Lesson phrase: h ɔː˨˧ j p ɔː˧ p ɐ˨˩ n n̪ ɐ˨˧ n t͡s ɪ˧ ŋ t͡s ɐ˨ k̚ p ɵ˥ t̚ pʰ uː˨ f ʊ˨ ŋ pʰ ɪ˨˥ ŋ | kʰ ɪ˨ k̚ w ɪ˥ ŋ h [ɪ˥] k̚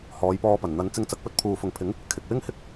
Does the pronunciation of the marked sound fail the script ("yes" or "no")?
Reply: no